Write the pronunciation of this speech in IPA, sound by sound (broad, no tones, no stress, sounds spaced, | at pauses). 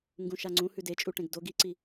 ŋ ɡ ũ ʃ a ŋ͡ǀ ũ h ʉ d e t͡ʃʼ u ʈ ẽ ɡ d o ɡ i ǀ i